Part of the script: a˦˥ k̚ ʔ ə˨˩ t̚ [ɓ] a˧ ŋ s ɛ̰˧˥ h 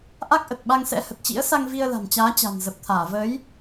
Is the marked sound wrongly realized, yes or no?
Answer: no